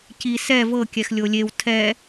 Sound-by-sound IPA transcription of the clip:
c i s ɛ v ɤ kʲ ɛ x lʲ o lʲ e w tʰ ɛ

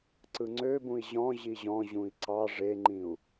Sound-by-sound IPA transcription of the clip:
ǀ ɯ ŋ͡ǀ ø b ũ i̯ ʑ ɔ̃ ʑ i ʑ ɔ̃ ʑ ũ i̯ ǀ ɑ ʐ e ŋ͡ǃ ĩ u̯

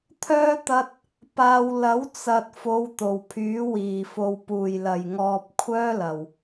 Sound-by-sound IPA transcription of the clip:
t̪ʰ œː˥ t̪ ɐ˥ t̚ | p aː˧ w l ɐ˨˥ w t͡s ɐ˨ t̚ f o˨˧ w t̪ o˨˩ w pʰ yː˨˥ w iː˨˩ f o˨ w p uː˨˩ j l ɐ˨˩ j ŋ ɔː˨ p̚ kʷʰ œː˥ l ɐ˨˩ w

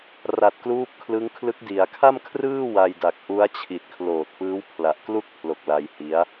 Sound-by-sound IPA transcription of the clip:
r a˨˩ t̚ k l uː˦˥ p̚ kʰ l ɯ˦˥ ŋ kʰ l ɯ˦˥ k̚ d i˩˦ a̯ kʰ a˥˩ m kʰ r ɯː˥˩ w a˧ j d a˨˩ k̚ ʔ u˦˥ a̯ t͡ɕʰ i˨˩ t̚ kʰ l oː˨˩ t̚ p ɯː˦˥ w pʰ l a˨˩ ʔ k l u˥˩ k̚ pʰ l o˨˩ k̚ l a˧ j h i˦˥ a̯

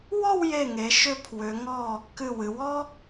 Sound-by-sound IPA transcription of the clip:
w ɔ˥˧ w j e˧˩ ŋ e˩˧ ʃ ʏ˧ pʰ w ʏ˩˧ ŋ ɔ˧˩ | k ɨ˧˩ w ɨ˩˧ w ɔ˥

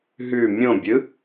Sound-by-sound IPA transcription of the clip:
ɦ ʉ mʲ õ bʲ ɯ

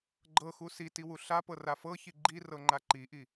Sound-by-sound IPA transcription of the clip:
ɡ͡ǃ ɤ x u s i t i w u ɬ a p ɤ r a f ɤ ç i ɡ͡ǃ i r ɤ ŋ͡ǃ a ǃ i ʔ i

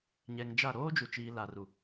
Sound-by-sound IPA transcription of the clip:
ɲ ɛ˨ ŋ d͡ʒ a˦˨ ɾ oː˦ d͡ʒ u˨ t͡ʃ iː˨ l a˨ r u˨

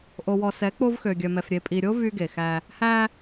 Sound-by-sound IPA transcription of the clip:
ʔ o˨ w ɔ˨ s ɛ˨˦ k͡p o˦ v x ø˨ ɡʲ œ˨ m ɛ˨ f ɾʲ e˨ pʼ i˨ ɾʲ o˦ v y˦ ɡ e˨ x æ˦ | h æ˦

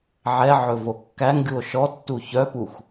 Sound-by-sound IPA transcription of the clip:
ʕ ɛ ʕ ɵ v o kː æ ŋ ɡʲ u o̯ ʃ ɔ tː u ç œ p u x

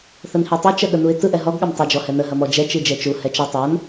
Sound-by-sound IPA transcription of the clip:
θ ə n h i tˤ u t͡ʃ ɐ ɠ ə n u ɪ̯ t ɯ ʔ ɛ ɦ ɔ ɡ ɠ ɐ m tˤ ə d͡ʒ ɔ h ɛ n ə ɦ ɐ m ɔ d͡ʒ ɛ t͡ʃ i d͡ʒ ɛ t͡ʃ u h ɛ t͡ʃ ɐ tˤ a n

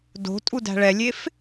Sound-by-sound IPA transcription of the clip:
d o̤ tʼ u d æ̤ ɭ ɛ lʲ e f

